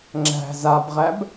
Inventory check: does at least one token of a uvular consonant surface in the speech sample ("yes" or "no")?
yes